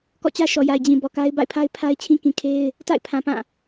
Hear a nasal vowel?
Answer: yes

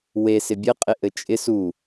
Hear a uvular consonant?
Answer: yes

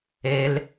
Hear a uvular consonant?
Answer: no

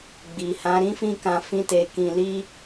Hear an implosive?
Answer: no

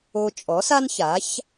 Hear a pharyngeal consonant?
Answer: no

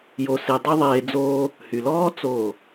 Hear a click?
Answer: no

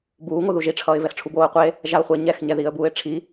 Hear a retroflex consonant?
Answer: yes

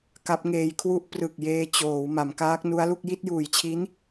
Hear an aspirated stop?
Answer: yes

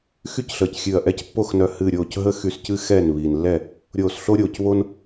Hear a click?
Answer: no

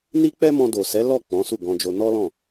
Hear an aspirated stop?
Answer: no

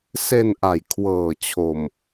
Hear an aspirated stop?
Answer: yes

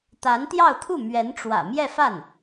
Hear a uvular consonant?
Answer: no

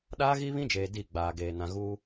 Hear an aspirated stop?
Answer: no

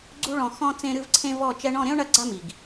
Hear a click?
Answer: yes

